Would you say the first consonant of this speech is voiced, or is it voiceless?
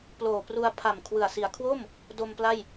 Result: voiceless